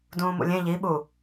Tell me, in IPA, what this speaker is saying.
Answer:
d ũː m ṵ lʲ ẽ ʎ i ɓ u

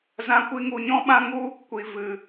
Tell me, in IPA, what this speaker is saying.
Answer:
z ã˦ kʷ i˦ ŋ u˧ ɲ ɔ̃˦ ɓ ã˦ ŋ u˦ | kʷ i˧ v ɨ˧

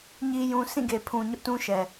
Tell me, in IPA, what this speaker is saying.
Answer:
ɲ i˨ j ũ˨ sʰ ĩ˦˨ ɡ e˨ pʰ ũ˨ ɲ ʊ˦ ʔ t ũ˦ ʃ ɛ˨

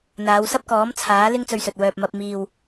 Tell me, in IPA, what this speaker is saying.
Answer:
n̪ aː˨˧ w s ɐ˥ p̚ k ɔː˨˥ m t͡sʰ aː˨˥ l ɪ˥ ŋ t͡s ɵ˧ ɥ s ɵ˨ t̚ w œː˨ p̚ m ɐ˧ p̚ m iː˨ w

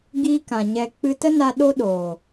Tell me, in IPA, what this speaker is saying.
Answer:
ɡ iː˦ k ã˨ ɲ ɛ˧ k͡p ɨ˧ t ə˦ n a˧ ɗ o˦ ɗ oː˨

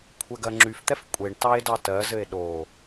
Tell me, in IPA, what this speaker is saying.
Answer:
kʷʰ ɛ ɡ ɜ ŋ͡ǁ y f t̪ ɛ f kʷʼ e ɳ t ɑ e̯ d ɑ t ɜ z ɘ e̯ ɗ o

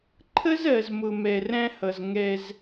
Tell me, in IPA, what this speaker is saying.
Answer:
ǃʰ ə˦ z ɜ˨ z m ʊ˨ m ɛ˨ r æ̃˦ h ʌ˨ z ŋ ɛ˦ z

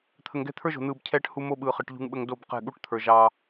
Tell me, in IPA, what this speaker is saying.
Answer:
t̪ʰ ə˨ ŋ ɡ ɛ̤˦ t̪ʰ ə˞˦ ʒ o̤˨ n̪ ɯː˨ b cʰ ɛː˦ ʈ h u˦ m o˦ ɓ ɯː˨ χ ɯ˨ ʈ ʎ ṳ˦ ŋ ɓ ə˦ ŋ d o˦˨ b q ɛ̤˦˨ ɠ u˦ ʈ t̪ʰ ə˞˨ ʒ ɑ˦

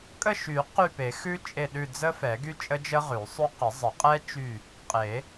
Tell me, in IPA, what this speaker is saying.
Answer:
kʼ ə˦˨ ʃ y˨˩˦ q y˦˨ p e˨˩˦ x ʉ˦˥ t͡ʃʼ e˦˨ ɗ ʉ˦˨ d͡z ə˦˥ f ɛ˨˩˦ ɡ y˦˥ t͡ʃʼ ə˦˥ d͡ʒ ə˦˥ ʁ ʉ˨˩˦ sˤ ʉ˦˥ q ə˨˩˦ zˤ ə˨˩˦ qʼ ɛ˦˥ t͡ʃ y˦˨ | qʼ e˨˩˦

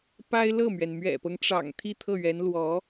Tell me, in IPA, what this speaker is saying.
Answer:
p a˥ ɪ̯ l ɤ˥˩ m ɥ ɛ˩ n m ɥ ɛ̰˨˩ p ɤ˦ ŋ ʈ͡ʂ ɑ̰˨˩ ŋ t̪ʰ i˥˧ t̪ʰ ɤ˥˩ ɥ ɛ˧˥ n l w ɔ˧˥

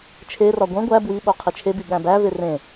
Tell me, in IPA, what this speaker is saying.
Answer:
t͡ʃʰ e r ɒ ɡʷ ẽ ɡʷ æ b w i ɓ o qʰ i t͡ʃʰ e b i ɠ æ̃ b æ v e r ẽ

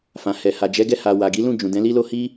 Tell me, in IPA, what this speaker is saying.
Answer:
f ã˨ h ɛ˨ h a˨ d͡ʒ ɛ˨˦ ɡ ɛ˧ h a˨ w a˨ ɡ i˨˦ l ũ˦˨ d͡ʒ ũ˨ d ɛ̃˨˦ l i˦ l o˦ h i˦

